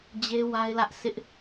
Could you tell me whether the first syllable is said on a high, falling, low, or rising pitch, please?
high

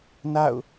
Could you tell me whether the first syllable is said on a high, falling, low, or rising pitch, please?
falling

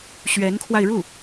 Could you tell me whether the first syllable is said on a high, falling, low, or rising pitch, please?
rising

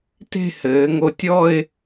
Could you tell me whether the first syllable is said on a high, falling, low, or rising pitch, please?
falling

